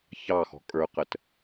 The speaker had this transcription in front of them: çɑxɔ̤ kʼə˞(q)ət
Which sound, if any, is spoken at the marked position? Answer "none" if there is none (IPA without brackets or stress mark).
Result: q